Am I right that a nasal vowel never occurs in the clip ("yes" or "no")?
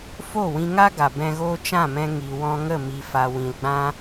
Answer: no